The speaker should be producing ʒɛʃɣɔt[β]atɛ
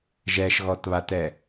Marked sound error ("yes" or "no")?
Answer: no